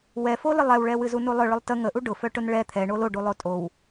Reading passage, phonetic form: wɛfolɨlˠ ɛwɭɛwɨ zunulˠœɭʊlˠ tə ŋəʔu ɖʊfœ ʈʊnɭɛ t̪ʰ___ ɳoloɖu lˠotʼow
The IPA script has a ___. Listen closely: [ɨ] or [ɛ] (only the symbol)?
ɛ